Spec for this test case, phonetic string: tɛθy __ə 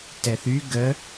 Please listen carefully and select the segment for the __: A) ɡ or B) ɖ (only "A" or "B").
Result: A